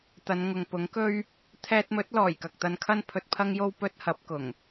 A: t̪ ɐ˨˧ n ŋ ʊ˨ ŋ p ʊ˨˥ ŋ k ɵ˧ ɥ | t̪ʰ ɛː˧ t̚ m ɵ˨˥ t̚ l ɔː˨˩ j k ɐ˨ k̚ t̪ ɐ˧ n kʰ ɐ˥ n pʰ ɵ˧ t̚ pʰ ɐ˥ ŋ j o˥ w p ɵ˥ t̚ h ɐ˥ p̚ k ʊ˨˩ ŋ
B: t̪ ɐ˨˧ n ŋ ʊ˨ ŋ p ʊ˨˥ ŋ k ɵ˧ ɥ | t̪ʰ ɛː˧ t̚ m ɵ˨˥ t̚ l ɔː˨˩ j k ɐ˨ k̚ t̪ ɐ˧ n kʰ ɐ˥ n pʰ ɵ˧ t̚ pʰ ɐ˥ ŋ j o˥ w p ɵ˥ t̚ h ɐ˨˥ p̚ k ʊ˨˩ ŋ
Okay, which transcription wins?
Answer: B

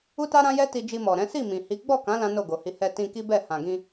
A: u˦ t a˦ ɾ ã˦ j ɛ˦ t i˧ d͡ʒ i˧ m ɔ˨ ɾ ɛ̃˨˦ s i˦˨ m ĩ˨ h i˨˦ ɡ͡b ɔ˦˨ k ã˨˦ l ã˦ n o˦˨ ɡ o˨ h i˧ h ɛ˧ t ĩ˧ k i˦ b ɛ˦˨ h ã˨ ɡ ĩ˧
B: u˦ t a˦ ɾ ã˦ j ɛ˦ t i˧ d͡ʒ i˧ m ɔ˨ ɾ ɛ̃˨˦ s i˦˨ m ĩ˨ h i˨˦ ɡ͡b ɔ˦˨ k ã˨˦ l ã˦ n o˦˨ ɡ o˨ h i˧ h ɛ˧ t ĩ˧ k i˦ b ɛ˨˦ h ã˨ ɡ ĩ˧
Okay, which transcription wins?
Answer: A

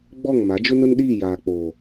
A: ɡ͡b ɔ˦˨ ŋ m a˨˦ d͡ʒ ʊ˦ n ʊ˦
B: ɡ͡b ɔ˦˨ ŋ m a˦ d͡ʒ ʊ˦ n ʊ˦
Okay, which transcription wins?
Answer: A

